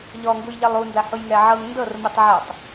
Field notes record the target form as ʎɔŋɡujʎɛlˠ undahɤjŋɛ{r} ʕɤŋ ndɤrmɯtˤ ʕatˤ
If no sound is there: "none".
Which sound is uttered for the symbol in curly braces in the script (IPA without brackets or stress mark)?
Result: none